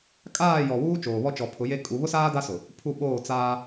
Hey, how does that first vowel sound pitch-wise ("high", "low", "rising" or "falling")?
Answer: falling